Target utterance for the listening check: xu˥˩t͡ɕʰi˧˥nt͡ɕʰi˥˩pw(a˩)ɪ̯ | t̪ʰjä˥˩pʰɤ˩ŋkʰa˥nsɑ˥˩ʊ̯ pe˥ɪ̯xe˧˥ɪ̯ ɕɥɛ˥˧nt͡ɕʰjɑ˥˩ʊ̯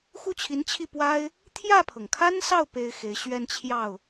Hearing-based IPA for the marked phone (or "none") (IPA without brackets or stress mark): a˥